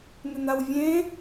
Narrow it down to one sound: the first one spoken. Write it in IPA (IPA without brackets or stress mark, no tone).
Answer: n